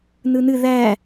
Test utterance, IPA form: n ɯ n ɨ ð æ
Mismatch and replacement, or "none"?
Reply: none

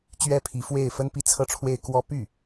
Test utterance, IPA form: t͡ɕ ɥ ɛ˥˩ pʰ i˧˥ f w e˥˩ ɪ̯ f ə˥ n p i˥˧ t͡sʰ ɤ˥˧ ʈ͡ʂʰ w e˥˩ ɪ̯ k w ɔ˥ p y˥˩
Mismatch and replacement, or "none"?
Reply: none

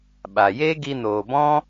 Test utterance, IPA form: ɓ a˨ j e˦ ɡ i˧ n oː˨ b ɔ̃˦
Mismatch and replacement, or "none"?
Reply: none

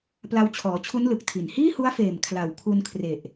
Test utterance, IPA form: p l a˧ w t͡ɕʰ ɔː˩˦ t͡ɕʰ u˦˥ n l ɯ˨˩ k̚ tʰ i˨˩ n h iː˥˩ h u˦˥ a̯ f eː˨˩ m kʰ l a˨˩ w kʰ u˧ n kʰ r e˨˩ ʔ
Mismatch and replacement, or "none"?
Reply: none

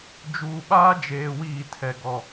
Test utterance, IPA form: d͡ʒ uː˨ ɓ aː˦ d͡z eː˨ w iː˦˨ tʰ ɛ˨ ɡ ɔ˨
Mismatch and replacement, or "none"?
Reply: d͡z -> d͡ʒ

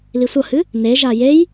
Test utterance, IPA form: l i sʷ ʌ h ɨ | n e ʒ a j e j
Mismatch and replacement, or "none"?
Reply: none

